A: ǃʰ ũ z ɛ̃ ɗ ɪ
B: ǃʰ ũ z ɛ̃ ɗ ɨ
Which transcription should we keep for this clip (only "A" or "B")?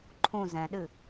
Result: B